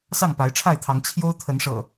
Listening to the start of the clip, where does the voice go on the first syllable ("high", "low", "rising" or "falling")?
falling